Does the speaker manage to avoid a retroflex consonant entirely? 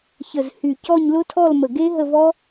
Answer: yes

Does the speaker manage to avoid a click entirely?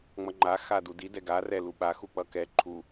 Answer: no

